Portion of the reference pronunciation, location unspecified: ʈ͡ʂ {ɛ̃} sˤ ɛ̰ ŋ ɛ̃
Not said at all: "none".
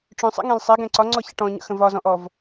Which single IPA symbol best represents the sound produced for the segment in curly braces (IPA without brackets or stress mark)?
œ̃